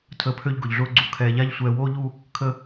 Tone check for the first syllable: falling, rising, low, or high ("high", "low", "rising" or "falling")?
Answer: rising